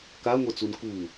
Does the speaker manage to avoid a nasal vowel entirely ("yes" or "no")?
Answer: yes